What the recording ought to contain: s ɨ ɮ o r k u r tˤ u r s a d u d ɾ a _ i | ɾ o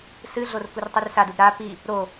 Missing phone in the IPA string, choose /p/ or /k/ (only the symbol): p